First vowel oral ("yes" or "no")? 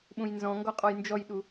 no